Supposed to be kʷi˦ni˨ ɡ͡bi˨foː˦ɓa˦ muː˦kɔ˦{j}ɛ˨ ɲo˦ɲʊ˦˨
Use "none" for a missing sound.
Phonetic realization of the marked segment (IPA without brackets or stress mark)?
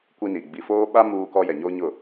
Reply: j